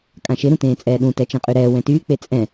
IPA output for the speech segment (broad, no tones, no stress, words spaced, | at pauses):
kʼãʃɪ ɾũtẽːt͡sʼɛːɗũ tɛt͡ʃẽqʼyɾɛː wɛ̃tyː k͡pet͡sʼɛ̃